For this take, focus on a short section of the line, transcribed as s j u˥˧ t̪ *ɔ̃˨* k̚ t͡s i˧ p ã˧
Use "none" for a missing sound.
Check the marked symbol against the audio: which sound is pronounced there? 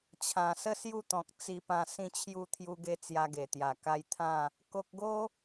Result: ɔ̃˨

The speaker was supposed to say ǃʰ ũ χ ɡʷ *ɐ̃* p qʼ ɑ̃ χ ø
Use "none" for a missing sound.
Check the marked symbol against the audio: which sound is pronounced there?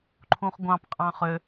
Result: ɑ̃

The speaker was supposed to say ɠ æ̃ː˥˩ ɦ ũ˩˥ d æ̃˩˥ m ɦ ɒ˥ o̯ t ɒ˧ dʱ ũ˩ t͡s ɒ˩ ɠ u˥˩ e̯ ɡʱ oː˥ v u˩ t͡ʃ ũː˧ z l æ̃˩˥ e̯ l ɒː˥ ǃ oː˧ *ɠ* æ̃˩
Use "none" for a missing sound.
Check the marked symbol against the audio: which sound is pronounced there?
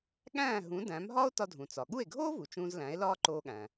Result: ɠ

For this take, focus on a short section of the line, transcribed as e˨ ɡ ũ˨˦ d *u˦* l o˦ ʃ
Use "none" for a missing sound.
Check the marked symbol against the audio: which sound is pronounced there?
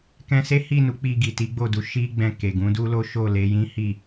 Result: u˦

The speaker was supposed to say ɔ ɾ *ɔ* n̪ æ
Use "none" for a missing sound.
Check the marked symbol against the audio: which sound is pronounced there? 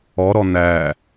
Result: ɔ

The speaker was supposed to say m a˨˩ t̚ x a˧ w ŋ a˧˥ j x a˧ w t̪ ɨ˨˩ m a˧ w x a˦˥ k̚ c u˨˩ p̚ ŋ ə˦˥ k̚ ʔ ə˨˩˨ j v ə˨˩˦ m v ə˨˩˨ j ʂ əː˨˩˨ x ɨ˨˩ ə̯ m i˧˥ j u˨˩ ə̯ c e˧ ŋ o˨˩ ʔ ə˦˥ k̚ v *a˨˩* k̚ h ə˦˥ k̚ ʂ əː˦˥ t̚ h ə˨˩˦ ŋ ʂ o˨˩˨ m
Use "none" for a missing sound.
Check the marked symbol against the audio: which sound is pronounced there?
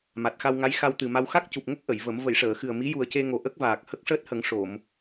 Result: aː˨˩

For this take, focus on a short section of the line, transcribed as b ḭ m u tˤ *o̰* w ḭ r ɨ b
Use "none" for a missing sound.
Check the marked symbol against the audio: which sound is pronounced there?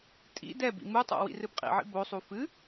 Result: o̰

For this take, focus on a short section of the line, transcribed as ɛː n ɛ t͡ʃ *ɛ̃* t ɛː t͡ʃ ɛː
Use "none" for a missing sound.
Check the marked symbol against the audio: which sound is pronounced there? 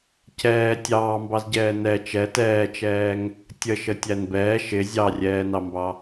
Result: ɛ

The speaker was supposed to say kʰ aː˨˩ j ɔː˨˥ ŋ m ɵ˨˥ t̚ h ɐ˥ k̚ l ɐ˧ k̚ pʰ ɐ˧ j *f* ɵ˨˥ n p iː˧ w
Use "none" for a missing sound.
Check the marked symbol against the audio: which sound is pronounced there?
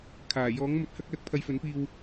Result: f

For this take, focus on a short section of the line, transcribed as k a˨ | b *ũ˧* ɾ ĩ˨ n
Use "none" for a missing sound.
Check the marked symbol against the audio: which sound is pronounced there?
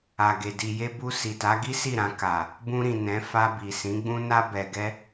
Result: ũ˧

